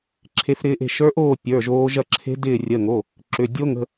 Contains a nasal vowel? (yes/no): no